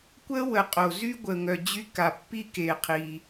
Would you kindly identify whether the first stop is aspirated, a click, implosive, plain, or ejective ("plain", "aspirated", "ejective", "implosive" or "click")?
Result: plain